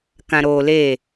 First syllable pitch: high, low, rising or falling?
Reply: low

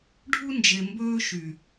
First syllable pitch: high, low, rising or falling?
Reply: high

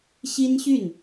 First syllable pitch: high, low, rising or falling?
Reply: high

